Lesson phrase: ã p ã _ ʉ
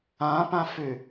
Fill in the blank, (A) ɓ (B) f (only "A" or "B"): B